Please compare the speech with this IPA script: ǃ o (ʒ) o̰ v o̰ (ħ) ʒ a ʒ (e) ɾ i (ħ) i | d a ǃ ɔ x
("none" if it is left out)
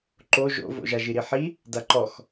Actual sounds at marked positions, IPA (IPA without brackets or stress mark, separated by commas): ʒ, none, i, ħ